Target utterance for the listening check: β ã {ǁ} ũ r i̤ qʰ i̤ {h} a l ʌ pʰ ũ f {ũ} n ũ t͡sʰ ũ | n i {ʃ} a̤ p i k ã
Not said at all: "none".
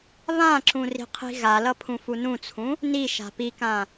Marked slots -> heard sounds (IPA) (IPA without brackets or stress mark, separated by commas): ǁ, ɣ, u, ʃ